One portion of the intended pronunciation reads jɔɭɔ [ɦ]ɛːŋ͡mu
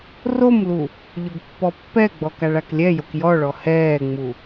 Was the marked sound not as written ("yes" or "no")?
yes